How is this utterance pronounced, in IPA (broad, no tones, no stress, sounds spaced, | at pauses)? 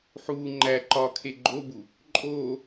ħ uː ŋ͡ǃ æ ǃ ɒː kʰ e ɡ͡ǃ o b u | ǃʼ oː